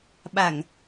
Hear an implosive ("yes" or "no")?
yes